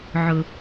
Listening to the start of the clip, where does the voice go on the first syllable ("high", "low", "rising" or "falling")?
low